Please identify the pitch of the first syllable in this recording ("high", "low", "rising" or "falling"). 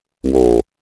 low